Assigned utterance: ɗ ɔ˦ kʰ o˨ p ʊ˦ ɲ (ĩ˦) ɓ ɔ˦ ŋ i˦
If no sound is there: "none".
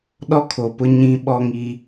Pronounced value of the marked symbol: ĩ˦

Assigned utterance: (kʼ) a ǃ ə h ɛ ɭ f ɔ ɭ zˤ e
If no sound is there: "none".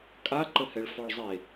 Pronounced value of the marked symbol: kʼ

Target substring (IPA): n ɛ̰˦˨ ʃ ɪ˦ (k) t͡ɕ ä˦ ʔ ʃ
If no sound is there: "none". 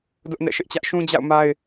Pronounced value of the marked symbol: ʔ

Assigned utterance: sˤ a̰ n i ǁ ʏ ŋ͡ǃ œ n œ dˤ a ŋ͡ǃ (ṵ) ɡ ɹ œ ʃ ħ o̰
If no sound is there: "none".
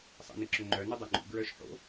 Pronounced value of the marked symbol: ṵ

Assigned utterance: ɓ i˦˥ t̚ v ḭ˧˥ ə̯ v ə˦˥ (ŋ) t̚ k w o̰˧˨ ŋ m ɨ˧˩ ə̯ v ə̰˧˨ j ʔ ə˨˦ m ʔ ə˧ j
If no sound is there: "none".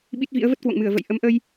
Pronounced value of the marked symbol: none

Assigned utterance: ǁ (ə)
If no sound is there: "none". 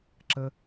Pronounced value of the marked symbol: ə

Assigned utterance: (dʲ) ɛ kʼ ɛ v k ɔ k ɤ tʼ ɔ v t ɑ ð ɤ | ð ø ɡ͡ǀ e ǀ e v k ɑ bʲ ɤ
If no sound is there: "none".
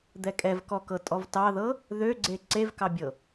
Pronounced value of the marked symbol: d̪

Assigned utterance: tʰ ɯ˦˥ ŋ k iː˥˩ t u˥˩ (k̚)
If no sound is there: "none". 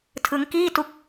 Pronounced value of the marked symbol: k̚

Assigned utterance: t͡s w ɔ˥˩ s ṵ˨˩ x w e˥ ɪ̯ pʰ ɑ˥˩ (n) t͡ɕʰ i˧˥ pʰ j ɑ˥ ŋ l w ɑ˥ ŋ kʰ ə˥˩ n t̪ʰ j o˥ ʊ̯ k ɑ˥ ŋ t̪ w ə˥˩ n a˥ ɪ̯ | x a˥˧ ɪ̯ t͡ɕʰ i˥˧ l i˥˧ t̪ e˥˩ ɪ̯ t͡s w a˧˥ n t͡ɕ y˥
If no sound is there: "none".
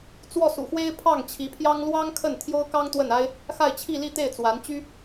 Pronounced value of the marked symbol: ŋ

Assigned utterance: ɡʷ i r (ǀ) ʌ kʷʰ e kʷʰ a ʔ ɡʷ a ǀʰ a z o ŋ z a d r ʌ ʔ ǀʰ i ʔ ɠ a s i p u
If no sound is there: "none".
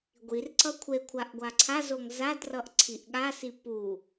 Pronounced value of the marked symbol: ǀ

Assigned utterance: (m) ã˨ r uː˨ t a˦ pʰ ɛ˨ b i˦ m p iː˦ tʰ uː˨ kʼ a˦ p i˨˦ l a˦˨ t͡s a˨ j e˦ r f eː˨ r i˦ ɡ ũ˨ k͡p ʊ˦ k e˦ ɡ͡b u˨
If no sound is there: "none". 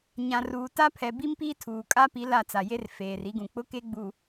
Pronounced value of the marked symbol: ɲ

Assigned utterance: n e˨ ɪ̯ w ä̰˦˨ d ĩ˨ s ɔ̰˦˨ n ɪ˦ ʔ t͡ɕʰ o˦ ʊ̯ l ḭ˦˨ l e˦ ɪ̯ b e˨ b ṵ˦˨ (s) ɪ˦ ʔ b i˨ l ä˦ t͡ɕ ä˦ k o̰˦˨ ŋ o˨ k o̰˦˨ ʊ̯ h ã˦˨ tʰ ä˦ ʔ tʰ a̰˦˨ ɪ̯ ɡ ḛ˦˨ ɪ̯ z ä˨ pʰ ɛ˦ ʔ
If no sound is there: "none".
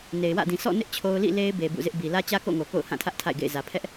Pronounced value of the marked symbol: z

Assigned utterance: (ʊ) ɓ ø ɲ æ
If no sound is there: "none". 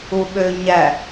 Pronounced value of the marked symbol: u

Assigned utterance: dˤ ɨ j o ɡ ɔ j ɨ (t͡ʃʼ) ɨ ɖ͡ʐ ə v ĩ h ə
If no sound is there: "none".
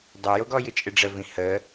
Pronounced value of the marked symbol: t͡ʃʼ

